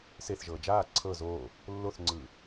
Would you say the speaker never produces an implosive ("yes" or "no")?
yes